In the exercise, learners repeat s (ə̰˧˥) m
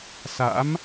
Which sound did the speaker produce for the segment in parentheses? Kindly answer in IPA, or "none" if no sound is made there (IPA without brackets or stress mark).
a̰˧˥